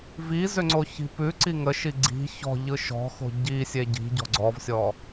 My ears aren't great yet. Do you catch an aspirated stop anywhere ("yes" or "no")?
no